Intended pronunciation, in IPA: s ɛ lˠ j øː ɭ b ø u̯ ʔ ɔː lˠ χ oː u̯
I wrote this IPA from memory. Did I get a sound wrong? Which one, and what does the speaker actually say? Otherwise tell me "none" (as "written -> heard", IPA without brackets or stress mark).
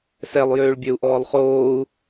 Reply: b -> bʲ